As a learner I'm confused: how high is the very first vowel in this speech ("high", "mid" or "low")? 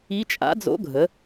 high